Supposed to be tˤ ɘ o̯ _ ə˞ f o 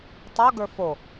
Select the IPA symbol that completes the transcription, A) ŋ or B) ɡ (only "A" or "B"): B